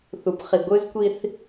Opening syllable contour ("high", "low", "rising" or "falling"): rising